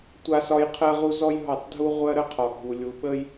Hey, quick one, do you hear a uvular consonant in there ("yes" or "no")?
yes